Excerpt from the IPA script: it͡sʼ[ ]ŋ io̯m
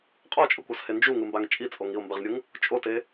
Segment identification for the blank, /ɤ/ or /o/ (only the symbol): o